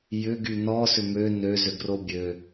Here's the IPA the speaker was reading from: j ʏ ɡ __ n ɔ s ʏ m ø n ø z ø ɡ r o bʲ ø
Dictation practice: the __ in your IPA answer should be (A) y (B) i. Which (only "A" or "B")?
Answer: A